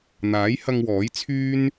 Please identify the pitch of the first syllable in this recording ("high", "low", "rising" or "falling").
rising